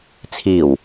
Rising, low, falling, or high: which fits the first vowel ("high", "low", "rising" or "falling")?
low